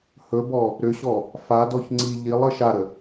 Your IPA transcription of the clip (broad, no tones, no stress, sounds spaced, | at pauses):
h ɵ b ɔ | ɾ ʏ ɕ ɔ | f a d ɔ ç ŋ͡ǀ i ʎ i lˠ ə ʃ a ɾ ə